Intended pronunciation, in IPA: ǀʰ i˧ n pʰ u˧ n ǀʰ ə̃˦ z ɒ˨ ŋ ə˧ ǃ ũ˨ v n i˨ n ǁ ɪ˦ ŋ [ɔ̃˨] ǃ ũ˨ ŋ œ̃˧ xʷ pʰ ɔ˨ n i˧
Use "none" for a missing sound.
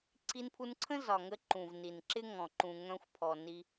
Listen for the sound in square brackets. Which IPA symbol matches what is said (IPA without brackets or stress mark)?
ɔ̃˨